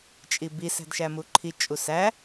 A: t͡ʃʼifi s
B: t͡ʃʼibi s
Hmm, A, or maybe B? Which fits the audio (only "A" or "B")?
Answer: B